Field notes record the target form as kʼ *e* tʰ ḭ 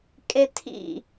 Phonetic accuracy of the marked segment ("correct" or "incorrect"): correct